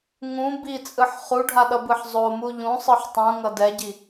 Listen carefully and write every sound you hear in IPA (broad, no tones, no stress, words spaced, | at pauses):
ŋũ bit͡sʼɯħ χuɖʱaɗʌbɯħ zˤomu ʎũsˤɯħ tˤũŋʌ dɛɟi